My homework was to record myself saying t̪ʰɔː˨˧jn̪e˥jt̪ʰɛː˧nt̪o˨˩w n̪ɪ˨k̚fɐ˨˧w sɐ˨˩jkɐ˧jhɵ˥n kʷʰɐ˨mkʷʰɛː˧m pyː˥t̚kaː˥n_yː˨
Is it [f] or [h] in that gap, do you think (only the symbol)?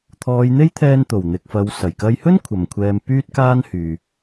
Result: h